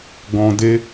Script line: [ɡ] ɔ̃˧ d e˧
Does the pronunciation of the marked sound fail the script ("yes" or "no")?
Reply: no